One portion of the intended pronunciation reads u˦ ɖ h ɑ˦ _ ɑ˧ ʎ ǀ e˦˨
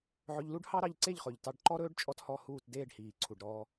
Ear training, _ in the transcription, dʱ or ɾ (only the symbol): ɾ